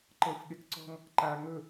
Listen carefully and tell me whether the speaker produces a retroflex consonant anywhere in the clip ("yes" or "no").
no